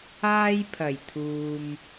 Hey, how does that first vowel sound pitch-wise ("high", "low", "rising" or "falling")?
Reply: high